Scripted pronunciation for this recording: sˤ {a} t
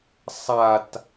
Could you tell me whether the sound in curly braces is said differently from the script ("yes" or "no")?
no